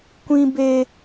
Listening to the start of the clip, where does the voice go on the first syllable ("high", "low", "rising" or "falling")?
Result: high